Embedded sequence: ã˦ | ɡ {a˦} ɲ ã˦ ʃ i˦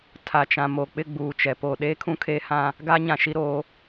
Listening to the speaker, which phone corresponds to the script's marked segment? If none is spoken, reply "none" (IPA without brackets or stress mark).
a˦